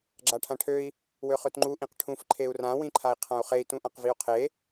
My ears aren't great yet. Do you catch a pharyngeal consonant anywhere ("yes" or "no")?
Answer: no